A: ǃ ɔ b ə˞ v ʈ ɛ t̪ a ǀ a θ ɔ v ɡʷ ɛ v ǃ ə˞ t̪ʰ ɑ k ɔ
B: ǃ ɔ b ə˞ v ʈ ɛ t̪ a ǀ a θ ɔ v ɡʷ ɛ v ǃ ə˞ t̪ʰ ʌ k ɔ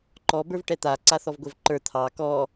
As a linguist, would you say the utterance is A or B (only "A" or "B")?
A